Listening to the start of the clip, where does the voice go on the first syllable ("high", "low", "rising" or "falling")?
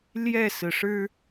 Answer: falling